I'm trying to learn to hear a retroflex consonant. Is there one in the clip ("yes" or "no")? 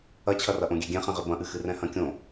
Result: no